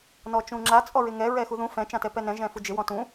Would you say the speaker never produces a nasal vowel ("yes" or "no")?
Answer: no